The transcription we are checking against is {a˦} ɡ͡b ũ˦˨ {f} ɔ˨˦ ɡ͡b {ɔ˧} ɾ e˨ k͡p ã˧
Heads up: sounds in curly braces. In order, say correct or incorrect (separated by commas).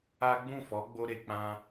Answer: correct, correct, incorrect